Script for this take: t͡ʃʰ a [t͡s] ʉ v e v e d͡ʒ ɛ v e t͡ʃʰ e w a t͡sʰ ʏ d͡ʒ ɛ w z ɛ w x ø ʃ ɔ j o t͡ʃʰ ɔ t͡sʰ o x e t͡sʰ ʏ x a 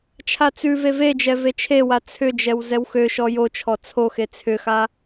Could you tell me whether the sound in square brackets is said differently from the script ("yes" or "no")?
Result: no